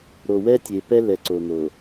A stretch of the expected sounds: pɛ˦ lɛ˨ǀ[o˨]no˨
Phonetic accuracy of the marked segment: correct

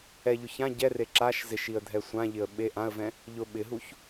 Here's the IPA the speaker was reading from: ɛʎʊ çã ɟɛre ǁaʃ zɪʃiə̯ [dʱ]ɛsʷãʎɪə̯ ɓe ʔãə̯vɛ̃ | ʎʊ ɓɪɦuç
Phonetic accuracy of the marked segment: correct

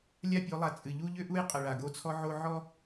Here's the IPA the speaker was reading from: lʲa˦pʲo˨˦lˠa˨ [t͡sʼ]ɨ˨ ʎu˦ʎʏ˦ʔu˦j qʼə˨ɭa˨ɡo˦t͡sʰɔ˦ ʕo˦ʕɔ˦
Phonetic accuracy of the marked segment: correct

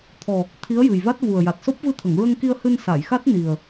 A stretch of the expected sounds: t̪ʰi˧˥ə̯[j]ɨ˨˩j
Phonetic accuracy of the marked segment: correct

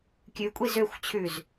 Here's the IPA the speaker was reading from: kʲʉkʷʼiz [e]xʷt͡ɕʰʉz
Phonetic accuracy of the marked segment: incorrect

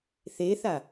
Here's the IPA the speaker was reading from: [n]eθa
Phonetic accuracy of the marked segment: incorrect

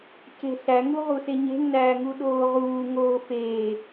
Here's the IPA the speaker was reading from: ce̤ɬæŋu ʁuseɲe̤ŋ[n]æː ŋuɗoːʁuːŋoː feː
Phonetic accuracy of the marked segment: correct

